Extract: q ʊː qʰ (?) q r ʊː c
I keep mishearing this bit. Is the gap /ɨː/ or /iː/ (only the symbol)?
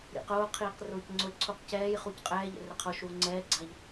iː